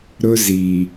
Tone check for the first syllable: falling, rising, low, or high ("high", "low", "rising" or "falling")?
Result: high